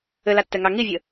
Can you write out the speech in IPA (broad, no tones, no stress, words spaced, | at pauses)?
ɘlatːɛŋɑ ŋivʲə